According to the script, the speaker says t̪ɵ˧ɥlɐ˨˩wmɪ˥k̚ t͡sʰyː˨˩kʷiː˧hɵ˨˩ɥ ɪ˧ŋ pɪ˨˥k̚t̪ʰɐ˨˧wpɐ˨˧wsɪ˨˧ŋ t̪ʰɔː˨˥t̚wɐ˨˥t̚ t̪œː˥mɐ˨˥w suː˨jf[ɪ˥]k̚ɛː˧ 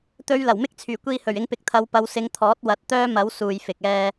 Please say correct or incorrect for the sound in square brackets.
incorrect